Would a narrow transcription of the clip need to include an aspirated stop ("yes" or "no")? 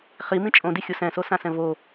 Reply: no